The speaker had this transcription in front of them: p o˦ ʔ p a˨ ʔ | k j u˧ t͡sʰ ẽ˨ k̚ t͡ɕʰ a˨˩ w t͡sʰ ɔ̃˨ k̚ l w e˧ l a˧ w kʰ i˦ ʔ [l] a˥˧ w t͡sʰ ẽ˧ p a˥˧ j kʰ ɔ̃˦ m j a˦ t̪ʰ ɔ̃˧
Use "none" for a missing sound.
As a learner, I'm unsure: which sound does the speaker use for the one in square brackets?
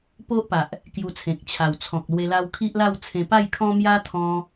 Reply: l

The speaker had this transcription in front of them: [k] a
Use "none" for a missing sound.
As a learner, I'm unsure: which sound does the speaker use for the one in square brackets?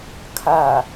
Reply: kʰ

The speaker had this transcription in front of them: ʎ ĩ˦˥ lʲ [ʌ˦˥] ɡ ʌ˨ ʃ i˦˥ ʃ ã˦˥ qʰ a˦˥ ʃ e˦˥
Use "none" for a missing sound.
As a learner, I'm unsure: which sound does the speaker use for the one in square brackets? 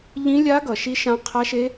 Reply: a˦˥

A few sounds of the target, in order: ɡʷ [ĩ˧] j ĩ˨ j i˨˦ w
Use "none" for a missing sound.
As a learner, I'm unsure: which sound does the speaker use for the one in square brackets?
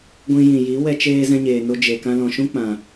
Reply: ĩ˧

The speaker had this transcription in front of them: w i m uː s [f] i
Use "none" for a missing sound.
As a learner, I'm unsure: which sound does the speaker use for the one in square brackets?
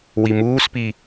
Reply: p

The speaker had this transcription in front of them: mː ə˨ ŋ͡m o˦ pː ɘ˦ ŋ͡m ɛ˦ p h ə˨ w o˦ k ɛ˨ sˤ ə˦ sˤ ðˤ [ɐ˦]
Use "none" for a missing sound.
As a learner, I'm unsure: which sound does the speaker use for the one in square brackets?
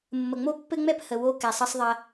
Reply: ɐ˦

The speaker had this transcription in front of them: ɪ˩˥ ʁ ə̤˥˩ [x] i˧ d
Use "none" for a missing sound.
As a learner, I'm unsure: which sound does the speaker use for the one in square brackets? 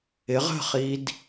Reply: χ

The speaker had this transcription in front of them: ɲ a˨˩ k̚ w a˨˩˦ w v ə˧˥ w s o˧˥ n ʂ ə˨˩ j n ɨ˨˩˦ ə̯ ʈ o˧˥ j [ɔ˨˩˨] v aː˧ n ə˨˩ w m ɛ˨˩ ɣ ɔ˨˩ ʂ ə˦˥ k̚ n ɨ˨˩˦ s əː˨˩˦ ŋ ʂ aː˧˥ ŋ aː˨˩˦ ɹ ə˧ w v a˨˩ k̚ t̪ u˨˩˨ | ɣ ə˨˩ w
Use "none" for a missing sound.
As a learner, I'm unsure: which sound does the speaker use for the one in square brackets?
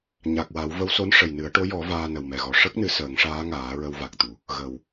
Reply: ɔ˨˩˦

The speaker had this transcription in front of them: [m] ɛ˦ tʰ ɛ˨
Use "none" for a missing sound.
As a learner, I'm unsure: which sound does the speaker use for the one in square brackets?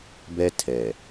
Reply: b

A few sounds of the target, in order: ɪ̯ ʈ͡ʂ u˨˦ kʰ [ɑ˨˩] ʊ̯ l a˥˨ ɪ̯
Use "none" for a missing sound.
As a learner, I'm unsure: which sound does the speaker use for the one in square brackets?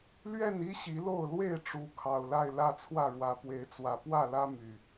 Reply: ɑ˨˩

